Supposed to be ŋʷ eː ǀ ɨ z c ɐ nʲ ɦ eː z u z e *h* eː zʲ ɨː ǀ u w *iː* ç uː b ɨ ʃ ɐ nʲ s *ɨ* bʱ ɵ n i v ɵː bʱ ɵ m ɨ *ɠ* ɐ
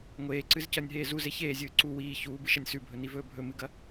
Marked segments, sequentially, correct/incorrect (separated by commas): incorrect, correct, incorrect, incorrect